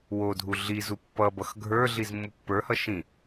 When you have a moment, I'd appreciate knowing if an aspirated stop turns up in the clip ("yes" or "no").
no